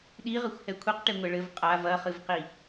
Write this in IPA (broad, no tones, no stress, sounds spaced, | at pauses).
ɗ i ʁ ɘ xʷ h ɛ kʷʰ i q ʈ e ŋʷ ɛ ɭ ɘ v qʼ a v ɐ χ ɨ v q i